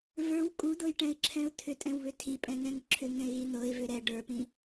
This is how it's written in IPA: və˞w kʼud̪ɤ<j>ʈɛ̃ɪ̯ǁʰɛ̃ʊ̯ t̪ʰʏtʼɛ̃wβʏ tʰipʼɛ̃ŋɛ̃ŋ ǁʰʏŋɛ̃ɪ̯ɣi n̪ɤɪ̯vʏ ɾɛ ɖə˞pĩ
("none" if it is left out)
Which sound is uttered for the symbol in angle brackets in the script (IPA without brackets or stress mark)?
j